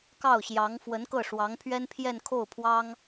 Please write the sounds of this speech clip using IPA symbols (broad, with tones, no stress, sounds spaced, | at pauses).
k ɑ˥˩ ʊ̯ ɕ j ɑ˧˥ ŋ f w ə˧˥ n k ɤ˥˩ ʂ w ɑ˧˥ ŋ pʰ ɥ ɛ˥ n pʰ j ɛ˥˧ n kʰ o˥˩ ʊ̯ pʰ w ɑ˥ ŋ